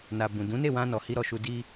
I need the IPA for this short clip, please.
na˨bũ˨ dũ˨˦ne˦˨wã˧nɔ˨ hi˧ɾɔ˨ʃu˧ di˧

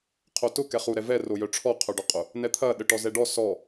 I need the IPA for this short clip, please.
qʰotʊ kɛχu ɾɛvɛ rojœʈ͡ʂʰɔ qʰœɖɔqʼʊ | nɛt̪ʰɐ ɗəʈɔzɛɖɔ sɔ

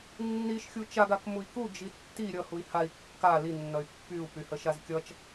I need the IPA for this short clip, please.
nːiʃxʲu t͡ʃaɡak mui̯ku d͡ʒitːi ɾʲʌ hui̯hai̯ kːa linːʌy̯ pːyu̯pyhə ʃazkʲʌt͡ʃ

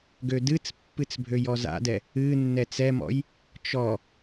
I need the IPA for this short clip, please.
ɡødɨt͡spːɨt͡s bʱøjɔza̰dɛ | ɨ nːɛt͡sɛmɔ̰j | t͡ʃɔ

